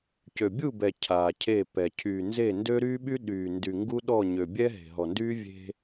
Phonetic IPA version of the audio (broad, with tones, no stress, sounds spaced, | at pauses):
c ø˨ bʲ u˦˨ b ɛ˨ cʰ aː˨ cʰ e˦˨ p ɛ˨ cʰ yː˨ n z e˦˨ n d ø˦ ɾ yː˦ ɓ y˦ ɗ yː˨ n d y˨ ŋ ɡ u˦ ɗ ɔ˦˨ ɲ ø˨ bʲ ɛ˦ ɦ e̤˨ ɦ ɔ˨ n d yː˦ vʲ e̤˦